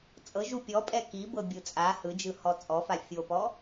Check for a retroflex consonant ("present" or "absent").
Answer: absent